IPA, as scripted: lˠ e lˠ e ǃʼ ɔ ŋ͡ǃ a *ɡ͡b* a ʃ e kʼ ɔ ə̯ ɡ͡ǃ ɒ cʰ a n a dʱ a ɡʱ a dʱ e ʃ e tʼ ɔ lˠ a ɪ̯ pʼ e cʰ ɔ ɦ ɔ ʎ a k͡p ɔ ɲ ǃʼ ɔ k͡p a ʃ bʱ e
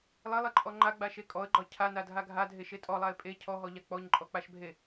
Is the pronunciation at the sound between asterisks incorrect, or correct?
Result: correct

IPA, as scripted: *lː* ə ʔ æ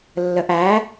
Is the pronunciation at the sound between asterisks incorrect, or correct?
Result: correct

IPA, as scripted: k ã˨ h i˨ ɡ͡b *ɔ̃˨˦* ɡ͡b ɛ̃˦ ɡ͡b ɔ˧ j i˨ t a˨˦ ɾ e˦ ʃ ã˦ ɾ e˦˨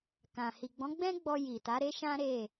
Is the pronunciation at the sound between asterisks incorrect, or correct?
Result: correct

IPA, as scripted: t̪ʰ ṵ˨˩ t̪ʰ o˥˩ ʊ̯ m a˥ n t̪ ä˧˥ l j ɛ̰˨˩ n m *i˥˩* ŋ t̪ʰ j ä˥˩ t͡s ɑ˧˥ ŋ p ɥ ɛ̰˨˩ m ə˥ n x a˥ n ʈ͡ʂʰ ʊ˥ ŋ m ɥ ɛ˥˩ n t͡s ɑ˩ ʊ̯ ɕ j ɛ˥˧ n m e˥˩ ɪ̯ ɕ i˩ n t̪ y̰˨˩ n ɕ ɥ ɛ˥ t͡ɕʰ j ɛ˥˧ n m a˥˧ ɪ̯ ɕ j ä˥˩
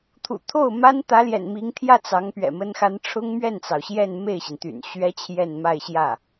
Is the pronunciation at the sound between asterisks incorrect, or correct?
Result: incorrect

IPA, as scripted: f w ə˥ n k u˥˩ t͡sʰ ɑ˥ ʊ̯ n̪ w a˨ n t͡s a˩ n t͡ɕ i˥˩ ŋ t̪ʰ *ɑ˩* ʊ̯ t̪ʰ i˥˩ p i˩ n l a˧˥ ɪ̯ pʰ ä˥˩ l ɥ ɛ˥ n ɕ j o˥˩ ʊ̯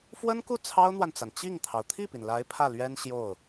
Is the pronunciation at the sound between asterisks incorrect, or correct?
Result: correct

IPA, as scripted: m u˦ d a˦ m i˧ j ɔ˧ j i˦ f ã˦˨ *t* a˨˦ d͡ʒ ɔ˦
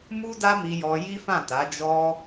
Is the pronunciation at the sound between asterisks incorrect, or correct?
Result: correct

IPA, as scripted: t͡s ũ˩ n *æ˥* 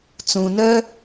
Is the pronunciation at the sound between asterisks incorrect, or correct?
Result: incorrect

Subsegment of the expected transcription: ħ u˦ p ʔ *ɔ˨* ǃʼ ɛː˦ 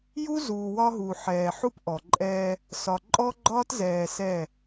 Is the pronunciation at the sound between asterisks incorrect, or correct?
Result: correct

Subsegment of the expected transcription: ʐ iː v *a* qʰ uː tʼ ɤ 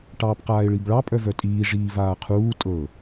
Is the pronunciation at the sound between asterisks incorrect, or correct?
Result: incorrect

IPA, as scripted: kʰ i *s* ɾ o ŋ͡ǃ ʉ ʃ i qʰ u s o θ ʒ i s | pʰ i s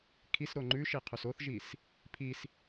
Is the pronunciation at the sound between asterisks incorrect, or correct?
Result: correct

